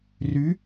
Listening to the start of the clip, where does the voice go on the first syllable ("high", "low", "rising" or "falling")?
rising